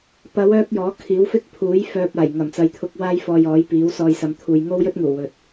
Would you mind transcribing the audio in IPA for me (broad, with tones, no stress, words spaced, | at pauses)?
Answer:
pɐ˨˧w œː˥k̚jɔː˨˥ kʰiː˨˥wfɪ˥k̚pʰuː˨˥j fœː˧p̚ aː˨˩jŋɐ˨˩mt͡sɐ˨jt̪ʰʊ˧k̚ waː˥jfɔː˧j ɔː˨˥jpiː˨˥w sɔː˧jsɐ˨˧mt̪ʰuː˨j ŋo˥wjɵ˥t̚ŋuː˨˩ wɵ˨t̚